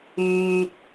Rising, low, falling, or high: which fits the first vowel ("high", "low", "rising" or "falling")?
low